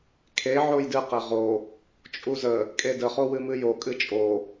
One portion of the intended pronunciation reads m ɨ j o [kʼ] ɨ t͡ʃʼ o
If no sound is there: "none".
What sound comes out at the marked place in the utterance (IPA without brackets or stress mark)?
kʼ